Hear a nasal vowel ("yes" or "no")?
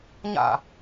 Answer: no